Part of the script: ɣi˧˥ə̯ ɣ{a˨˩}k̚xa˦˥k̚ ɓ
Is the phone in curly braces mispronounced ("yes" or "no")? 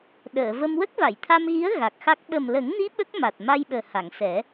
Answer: no